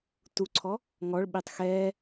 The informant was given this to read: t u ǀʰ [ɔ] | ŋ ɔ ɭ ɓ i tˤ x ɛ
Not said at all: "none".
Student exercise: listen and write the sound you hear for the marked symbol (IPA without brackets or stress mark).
ɔ